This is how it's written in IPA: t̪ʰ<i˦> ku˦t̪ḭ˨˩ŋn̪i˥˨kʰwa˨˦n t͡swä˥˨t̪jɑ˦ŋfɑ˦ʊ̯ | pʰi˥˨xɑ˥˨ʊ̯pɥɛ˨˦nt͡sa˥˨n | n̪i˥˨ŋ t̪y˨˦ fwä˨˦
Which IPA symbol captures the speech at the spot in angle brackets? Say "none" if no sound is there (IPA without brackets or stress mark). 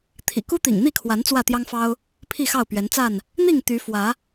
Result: ḭ˨˩